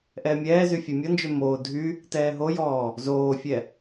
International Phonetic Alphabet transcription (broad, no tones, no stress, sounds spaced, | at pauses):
ʔ ɛː mʲ ɛː z y fʲ ɛ mʲ ɔ n d͡ʒ ø m oː dʱ y | t ɛː ɦ o j ɔː | z oː fʲ ɛ